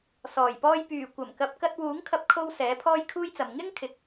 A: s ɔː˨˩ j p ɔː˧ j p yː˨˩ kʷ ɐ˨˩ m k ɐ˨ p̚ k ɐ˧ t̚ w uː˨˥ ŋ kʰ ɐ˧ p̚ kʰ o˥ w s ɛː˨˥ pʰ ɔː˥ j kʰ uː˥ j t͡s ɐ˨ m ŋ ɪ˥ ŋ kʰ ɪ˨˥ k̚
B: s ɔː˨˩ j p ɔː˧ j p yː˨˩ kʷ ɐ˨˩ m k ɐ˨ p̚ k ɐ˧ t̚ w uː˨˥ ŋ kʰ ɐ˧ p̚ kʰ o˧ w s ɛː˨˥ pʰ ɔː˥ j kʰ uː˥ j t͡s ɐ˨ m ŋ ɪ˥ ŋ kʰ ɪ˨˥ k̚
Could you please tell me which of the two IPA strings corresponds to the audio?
B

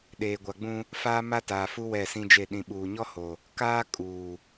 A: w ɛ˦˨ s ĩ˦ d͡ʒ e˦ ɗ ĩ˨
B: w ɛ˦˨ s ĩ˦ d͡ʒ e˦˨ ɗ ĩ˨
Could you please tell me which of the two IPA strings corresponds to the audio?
B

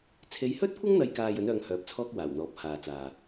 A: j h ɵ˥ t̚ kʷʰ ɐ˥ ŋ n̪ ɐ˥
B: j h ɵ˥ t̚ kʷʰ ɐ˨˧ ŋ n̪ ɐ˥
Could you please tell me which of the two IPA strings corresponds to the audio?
A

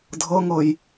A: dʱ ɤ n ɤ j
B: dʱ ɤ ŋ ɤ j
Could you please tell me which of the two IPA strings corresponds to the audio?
B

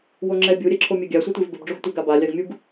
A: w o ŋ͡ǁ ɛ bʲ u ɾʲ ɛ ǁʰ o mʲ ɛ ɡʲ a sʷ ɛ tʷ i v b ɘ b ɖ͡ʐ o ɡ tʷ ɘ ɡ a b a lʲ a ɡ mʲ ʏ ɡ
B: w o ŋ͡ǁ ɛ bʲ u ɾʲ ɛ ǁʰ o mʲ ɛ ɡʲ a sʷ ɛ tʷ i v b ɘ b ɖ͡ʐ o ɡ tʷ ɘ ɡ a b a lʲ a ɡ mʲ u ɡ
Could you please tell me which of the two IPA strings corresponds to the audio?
B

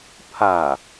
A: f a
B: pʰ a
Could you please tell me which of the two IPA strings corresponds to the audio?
B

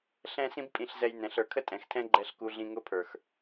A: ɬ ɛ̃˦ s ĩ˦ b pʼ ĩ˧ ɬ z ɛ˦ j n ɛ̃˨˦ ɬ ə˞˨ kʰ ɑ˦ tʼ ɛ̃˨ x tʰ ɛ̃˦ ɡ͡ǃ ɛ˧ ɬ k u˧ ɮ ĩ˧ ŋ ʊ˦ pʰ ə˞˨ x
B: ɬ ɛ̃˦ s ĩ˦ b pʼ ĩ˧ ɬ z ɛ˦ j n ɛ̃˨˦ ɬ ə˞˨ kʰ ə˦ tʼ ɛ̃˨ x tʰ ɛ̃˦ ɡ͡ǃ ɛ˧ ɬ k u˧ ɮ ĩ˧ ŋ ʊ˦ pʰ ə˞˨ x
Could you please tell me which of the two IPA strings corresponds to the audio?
B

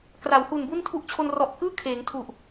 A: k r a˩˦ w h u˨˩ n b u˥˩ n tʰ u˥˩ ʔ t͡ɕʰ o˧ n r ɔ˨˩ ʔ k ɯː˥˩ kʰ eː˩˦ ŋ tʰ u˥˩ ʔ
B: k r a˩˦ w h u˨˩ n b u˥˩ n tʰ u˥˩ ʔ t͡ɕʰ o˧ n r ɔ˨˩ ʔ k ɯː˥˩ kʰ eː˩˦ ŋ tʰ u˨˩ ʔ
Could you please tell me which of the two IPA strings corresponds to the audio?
B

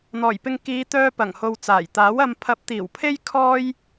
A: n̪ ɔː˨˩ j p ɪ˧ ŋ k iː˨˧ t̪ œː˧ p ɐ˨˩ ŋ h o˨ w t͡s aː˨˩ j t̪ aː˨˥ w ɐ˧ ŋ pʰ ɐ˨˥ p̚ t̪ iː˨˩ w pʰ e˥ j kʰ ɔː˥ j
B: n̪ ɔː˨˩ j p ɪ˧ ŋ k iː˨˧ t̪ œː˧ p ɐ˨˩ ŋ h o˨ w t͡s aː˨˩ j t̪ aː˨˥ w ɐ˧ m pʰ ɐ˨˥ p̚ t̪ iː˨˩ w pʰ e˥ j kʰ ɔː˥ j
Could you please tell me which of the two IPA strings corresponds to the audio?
B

